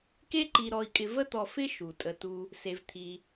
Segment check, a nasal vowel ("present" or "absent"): absent